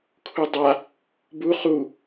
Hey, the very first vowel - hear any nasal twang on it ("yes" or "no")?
no